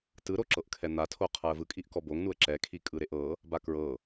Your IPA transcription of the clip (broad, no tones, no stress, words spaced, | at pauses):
tɯɾoǁɤʔ kʰɛn̪atʰo qʰɤə̯vɯkʼiʔkɔ boŋnuə̯ ǁɛ kʰikʼɯɾeʔɤ | bakɹɤ